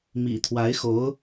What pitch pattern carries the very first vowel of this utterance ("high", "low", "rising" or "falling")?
low